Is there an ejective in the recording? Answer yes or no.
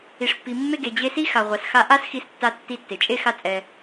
yes